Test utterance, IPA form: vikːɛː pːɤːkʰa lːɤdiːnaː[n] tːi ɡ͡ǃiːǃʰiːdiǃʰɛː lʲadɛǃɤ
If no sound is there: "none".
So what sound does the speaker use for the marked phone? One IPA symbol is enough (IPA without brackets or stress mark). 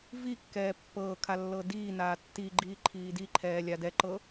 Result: none